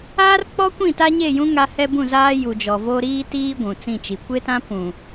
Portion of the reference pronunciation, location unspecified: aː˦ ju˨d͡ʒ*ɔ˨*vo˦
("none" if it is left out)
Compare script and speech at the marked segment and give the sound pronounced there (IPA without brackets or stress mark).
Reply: ɔ˨